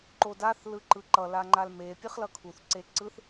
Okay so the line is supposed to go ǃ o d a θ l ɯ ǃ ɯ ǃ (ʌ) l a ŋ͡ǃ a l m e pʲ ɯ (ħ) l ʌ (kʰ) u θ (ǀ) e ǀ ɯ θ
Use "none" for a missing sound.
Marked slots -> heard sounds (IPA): ʌ, χ, kʰ, ǀ

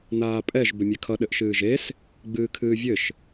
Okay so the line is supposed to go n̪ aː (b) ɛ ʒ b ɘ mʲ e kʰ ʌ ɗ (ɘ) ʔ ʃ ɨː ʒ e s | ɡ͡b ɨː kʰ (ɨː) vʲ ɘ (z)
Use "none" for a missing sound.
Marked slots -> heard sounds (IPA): pʼ, ɘ, ɨː, ʃ

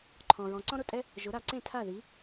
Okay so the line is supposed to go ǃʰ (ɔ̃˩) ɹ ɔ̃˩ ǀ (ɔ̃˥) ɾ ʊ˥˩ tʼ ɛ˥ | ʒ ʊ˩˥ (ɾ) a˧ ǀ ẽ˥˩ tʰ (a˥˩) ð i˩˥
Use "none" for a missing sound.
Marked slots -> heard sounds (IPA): ɔ̃˩, ɔ̃˥, ɾ, a˥˩

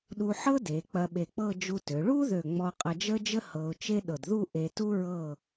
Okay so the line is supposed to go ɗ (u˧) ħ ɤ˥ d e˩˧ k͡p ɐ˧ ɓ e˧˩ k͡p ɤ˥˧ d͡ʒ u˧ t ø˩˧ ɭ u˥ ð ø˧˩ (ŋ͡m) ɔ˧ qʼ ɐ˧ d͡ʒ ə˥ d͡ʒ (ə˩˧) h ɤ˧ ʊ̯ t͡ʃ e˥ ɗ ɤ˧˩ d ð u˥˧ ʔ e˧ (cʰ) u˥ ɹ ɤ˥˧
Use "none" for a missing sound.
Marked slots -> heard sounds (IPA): u˧, ŋ͡m, ə˥, t

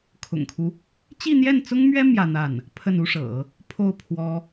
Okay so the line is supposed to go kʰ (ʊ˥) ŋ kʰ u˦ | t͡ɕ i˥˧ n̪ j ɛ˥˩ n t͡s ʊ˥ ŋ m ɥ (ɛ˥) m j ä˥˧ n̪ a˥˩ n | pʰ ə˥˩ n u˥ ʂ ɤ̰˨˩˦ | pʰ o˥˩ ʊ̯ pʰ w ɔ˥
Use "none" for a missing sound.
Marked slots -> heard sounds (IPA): ʊ̰˨˩, ɛ˥

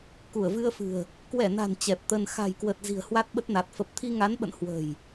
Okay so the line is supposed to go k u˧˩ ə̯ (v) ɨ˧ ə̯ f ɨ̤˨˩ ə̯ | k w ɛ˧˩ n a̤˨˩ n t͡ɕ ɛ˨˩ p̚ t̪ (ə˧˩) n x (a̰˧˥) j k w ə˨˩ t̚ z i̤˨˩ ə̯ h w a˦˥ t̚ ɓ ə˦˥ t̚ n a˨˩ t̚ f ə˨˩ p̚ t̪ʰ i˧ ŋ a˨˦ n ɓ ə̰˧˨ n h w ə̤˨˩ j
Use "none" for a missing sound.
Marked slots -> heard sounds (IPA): v, ə˧, a̤˨˩

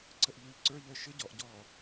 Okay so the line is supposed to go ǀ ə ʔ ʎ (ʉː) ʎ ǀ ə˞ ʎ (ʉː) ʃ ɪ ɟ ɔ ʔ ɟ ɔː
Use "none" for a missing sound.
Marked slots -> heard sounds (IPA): ʉː, əː

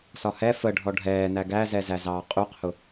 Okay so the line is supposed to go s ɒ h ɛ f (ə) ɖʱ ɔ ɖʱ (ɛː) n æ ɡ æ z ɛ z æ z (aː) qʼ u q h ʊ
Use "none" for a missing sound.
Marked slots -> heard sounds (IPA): ə, ɛː, ɑː

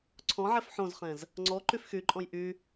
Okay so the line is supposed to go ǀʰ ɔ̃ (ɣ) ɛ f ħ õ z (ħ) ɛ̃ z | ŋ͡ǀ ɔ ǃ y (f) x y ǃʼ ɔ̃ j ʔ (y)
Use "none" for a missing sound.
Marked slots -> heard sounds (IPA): ʕ, χ, f, y

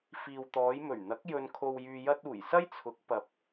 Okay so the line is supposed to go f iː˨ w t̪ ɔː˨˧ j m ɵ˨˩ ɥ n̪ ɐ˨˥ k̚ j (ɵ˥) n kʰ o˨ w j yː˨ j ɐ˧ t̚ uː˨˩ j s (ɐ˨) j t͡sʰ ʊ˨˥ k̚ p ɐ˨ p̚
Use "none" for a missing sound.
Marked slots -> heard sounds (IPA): ɵ˨, ɐ˥

